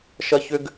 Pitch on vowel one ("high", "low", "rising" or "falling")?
high